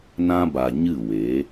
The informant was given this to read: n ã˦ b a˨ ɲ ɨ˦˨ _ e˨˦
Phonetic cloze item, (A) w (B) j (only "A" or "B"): A